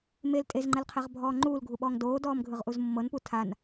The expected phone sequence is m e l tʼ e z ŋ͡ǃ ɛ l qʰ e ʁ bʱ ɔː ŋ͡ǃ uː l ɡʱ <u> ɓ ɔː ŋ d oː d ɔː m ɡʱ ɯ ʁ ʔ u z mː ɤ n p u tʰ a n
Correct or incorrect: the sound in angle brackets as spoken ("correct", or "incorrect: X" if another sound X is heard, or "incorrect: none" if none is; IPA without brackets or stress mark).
correct